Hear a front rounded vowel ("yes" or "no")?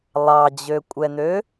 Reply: yes